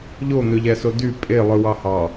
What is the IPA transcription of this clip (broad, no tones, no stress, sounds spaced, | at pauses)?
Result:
ʎ o n̪ ø ʎ æ s o d y pʼ e lˠ ɯ w ɑ h ɑ